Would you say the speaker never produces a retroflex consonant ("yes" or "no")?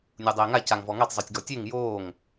yes